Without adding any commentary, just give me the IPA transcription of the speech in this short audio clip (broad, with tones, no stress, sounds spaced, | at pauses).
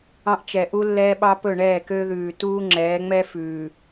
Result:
ɑ̃˦ ʔ t͡ʃ ɛ˨ ʔ u˦ lː ɛː˦ ɓ ɑ˦ p ɵ˦˨ ɳ ɛː˦˨ k ø˦ ð ʉː˨ t uː˦ ŋ͡ǁ ɛː˨˦ ŋ͡m ɛ˦ f ʉː˨